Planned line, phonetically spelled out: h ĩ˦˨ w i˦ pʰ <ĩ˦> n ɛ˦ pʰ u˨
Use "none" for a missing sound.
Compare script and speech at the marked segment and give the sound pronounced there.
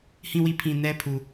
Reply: ĩ˨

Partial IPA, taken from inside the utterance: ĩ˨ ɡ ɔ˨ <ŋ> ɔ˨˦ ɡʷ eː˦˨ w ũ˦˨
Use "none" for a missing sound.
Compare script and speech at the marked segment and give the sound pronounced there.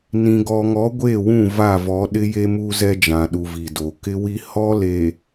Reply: ŋ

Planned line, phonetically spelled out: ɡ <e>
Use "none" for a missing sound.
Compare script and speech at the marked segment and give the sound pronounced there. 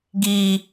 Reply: i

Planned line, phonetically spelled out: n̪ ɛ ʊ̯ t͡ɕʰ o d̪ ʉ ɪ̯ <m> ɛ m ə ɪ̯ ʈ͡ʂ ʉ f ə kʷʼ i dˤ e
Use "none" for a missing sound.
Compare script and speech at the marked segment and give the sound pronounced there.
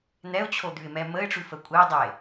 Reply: m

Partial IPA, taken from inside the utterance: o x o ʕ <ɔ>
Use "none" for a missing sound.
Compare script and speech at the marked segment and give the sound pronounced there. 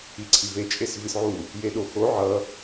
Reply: ʌ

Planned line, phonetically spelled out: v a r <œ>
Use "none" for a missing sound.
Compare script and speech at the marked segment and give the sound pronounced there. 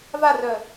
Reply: œ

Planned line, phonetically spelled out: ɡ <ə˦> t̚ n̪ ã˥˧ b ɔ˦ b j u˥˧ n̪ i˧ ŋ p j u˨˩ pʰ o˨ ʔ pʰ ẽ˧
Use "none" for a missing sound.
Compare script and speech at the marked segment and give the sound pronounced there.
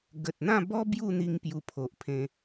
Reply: ə˨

